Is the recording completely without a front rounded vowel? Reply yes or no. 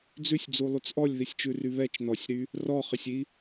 no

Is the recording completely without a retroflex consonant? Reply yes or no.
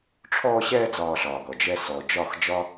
no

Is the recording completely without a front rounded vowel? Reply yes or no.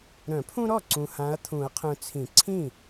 no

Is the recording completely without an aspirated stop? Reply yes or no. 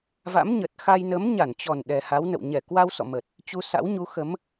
yes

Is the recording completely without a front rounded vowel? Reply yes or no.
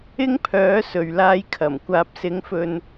no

